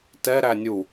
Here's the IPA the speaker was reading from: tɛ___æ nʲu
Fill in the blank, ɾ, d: ɾ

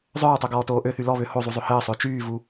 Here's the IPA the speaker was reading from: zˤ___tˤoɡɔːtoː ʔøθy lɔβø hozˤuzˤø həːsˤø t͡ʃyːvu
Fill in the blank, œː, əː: œː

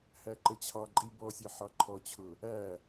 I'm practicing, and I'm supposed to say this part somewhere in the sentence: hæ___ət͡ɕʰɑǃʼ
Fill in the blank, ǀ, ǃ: ǃ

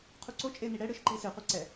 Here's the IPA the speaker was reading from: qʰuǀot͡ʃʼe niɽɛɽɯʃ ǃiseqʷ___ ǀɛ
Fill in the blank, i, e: i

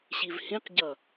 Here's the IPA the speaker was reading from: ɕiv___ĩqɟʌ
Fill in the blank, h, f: h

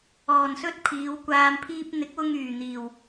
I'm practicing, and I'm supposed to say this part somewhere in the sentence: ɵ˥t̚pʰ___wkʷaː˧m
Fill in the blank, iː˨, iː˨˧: iː˨˧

